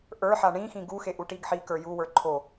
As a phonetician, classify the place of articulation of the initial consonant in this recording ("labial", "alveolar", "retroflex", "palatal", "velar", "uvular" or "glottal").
glottal